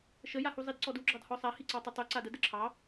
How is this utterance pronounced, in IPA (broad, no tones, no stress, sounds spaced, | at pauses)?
ʃ ə j a h u zˤ i d ǀ ɔ d u ɡ͡ǁ ɑ d h ɔ sˤ a h i ǀ ɑ tˤ ɘ tˤ u ǀ a d ə d ɘ ǁʰ ɑ